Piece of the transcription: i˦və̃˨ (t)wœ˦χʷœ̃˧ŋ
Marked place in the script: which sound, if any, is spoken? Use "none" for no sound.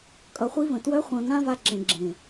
t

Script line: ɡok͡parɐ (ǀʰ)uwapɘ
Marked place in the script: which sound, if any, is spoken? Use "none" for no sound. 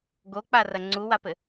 ŋ͡ǀ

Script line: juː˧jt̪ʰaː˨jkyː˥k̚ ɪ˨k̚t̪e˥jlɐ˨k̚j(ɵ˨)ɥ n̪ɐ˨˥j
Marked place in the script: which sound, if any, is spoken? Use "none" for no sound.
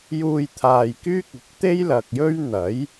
ɵ˥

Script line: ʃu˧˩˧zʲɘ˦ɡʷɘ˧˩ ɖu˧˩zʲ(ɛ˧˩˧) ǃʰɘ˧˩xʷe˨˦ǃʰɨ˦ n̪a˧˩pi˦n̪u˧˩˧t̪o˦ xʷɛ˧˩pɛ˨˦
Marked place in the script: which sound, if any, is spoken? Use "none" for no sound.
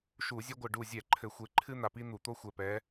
ɛ˧˩˧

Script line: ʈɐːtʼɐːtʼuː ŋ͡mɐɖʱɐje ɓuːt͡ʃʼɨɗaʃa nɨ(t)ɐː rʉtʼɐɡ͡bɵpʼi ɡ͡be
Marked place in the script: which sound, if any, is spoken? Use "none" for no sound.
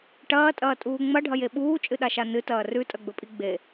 t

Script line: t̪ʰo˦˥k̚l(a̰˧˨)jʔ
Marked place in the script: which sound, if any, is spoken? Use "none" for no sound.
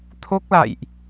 a̰˧˨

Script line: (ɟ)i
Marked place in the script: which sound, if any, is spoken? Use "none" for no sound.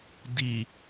d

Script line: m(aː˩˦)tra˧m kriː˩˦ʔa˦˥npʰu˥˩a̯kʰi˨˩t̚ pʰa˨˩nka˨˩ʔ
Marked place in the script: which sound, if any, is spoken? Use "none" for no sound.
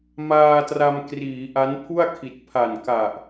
aː˧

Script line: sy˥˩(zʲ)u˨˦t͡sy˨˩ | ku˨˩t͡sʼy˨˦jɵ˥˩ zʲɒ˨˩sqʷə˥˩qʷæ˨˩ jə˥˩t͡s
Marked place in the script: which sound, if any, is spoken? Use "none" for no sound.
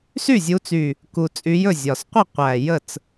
zʲ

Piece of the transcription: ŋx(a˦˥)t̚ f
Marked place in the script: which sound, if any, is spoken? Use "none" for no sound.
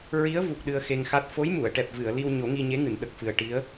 a˦˥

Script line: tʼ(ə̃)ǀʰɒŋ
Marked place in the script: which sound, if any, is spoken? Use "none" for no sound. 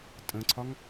ə̃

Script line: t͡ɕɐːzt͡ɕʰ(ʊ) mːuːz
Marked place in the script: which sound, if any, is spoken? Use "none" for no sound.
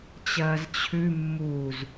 ʉ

